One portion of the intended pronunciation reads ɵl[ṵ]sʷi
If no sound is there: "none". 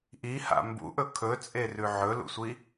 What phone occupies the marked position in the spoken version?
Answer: ṵ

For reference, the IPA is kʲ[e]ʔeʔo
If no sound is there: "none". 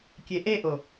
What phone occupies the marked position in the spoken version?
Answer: e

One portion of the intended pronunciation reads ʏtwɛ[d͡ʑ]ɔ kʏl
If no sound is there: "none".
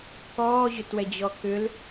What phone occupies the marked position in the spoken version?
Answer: d͡ʑ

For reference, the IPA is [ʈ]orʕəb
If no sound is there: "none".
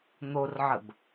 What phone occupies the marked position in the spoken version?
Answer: n̪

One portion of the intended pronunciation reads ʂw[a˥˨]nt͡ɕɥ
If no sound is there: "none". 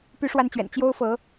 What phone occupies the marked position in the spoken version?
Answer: a˦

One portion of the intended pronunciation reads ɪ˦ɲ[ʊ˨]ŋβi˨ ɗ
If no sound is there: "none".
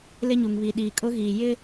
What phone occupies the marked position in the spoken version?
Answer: u˨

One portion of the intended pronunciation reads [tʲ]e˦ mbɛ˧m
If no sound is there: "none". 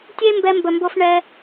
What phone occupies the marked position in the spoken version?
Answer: tʲ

